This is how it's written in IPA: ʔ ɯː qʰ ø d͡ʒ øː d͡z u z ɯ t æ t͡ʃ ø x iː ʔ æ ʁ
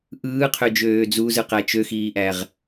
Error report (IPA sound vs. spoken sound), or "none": t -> q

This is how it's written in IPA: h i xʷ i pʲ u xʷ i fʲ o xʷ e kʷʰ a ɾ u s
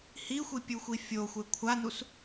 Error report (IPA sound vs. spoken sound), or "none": ɾ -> n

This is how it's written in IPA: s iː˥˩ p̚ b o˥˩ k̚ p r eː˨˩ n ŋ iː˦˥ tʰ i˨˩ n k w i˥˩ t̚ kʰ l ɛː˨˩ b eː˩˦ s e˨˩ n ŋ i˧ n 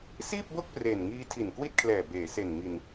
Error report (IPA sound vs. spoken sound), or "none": none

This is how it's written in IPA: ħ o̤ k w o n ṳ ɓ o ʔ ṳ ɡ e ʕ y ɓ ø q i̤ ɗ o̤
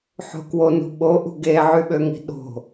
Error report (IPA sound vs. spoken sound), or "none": q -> ŋ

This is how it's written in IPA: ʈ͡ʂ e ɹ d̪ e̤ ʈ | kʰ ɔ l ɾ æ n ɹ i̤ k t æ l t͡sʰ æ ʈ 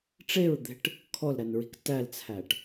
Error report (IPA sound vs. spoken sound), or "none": none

